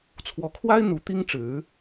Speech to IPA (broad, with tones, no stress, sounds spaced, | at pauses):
t͡sʰ w ɔ˧˥ kʰ w a˥ ɪ̯ n̪ u˧˥ t̪ i˥ ŋ ʈ͡ʂ ɻ̩˧˥